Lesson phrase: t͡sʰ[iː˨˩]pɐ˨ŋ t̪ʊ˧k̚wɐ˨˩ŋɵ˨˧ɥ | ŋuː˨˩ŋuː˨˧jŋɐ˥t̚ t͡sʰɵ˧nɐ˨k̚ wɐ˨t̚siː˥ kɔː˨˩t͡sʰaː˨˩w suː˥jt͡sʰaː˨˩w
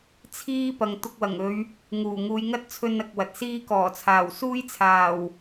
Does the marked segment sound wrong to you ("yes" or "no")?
yes